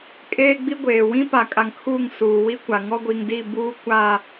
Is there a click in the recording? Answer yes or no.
no